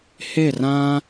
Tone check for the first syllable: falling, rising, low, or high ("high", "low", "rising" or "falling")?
falling